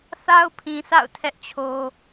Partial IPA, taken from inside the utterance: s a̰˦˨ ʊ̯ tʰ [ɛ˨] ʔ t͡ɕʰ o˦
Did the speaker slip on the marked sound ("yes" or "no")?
yes